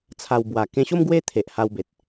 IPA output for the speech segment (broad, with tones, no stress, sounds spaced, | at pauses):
t͡sʰ a˨˩ w b w a˨˩ k ẽ˧ ɕ o˦ m ɡ w e˦ t̪ʰ e˨ ʔ h a˧ w b e˨ t̚